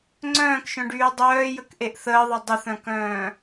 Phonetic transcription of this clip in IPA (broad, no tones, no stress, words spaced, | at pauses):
ŋ͡ǀœ̃ːkʃœ̃ɖyː dˤœːjəkʔeʔ θəːðˤe dˤəθœ̃kœ̃ː